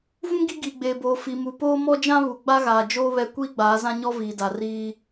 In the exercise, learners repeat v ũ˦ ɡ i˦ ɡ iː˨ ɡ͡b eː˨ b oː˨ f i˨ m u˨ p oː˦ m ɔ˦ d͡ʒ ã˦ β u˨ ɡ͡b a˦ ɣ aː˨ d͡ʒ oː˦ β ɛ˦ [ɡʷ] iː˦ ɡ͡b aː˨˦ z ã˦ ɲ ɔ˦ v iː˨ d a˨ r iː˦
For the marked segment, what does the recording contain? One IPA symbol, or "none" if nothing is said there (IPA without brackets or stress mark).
kʷ